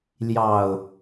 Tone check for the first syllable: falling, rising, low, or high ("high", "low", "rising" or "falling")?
low